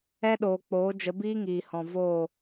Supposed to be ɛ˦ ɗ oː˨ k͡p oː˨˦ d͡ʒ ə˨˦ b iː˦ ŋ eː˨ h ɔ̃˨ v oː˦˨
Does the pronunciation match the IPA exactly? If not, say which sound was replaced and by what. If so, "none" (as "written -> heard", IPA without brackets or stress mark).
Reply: eː˨ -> iː˨